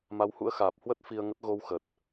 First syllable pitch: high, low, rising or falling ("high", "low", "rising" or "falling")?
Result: rising